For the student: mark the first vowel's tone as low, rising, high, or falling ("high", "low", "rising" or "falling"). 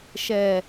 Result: falling